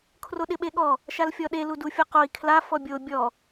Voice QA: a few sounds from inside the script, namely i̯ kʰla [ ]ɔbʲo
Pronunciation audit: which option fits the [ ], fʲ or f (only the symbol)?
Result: f